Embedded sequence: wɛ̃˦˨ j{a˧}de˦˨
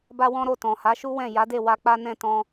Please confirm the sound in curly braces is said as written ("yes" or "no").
no